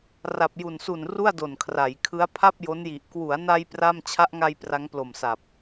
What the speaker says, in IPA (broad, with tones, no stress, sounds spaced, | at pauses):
r a˨˩ p̚ j u˨˩ n s u˨˩ n r u˥˩ a̯ d o˨˩ n kʰ r a˩˦ j kʰ ɯ˦˥ a̯ pʰ a˥˩ p̚ j o˦˥ n j i˨˩ ʔ k w u˩˦ a̯ n a˧ j p r a˥˩ m t͡ɕʰ a˦˥ ʔ ŋ a˧ j p r a˦˥ ŋ p l o˨˩ m s a˨˩ p̚